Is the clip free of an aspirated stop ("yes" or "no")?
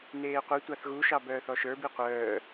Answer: yes